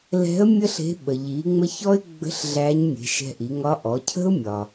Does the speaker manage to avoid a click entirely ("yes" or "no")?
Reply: yes